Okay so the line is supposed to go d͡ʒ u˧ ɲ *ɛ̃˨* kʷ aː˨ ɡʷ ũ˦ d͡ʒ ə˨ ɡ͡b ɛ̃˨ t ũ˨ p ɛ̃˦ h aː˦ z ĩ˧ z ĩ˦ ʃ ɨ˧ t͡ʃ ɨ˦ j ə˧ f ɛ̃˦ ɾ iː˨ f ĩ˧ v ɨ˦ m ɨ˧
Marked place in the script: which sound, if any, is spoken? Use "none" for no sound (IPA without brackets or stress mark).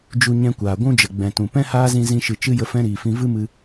ɛ̃˧